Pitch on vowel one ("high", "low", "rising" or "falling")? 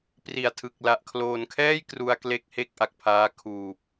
low